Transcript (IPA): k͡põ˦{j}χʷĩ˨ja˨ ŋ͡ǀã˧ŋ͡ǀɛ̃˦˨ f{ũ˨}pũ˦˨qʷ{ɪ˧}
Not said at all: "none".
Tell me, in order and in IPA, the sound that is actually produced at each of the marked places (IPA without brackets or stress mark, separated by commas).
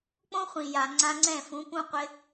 none, ũ˨˦, ɪ˧